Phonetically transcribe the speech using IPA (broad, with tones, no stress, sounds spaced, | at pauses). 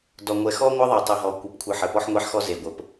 d ɔ˨ ŋʷ ɛ˨ x ɔ˦ ŋʷ ə˦ ðˤ ɛ˨ tˤ ɨ˨ ɦ ɔ˨ kʷ ɨ˨ p kʷʰ ɨ˨ ħ ə˨ p ɔ˦ ħ ŋʷ ɛ˦ ħ x ɔ˦ z e˨ ɡʷ ə˨ p